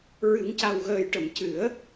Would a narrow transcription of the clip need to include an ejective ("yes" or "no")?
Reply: no